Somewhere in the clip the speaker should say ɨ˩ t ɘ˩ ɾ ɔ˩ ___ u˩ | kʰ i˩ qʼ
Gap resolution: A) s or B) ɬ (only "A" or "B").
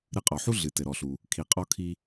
B